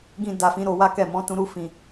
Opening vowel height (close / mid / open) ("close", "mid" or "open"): close